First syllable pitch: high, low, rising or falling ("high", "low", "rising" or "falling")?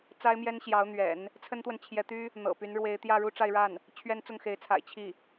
high